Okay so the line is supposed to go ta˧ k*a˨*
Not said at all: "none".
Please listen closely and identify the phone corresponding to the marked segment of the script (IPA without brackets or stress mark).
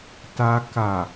a˨